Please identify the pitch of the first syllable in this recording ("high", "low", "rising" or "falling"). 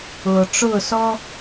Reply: low